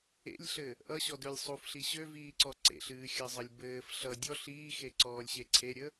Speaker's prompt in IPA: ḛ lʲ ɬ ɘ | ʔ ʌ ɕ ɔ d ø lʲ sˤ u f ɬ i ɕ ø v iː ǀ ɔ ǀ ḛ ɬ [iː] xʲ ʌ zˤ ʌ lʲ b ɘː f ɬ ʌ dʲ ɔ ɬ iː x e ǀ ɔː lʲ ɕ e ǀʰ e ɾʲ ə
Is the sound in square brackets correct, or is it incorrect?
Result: incorrect